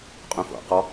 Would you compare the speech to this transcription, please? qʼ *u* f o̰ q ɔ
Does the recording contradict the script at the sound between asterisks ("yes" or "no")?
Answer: yes